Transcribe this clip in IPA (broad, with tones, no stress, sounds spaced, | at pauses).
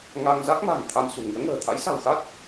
ŋ a˧ ŋ z a˦˥ k̚ m a̤˨˩ n t̪ʰ a˧ m s ṳ˨˩ ŋ i˨˦ ə̯ ŋ ə̤ː˨˩ t̪ʰ a̰˧˥ j s a̤˨˩ w x a˦˥ t̚